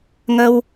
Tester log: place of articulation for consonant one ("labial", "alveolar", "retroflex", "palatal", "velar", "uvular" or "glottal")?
velar